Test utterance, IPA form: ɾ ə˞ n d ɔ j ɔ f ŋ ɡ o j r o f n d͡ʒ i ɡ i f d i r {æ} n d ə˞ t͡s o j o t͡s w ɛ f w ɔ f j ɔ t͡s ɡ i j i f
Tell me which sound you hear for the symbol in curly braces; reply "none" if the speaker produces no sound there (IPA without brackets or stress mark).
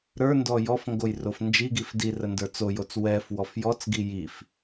ə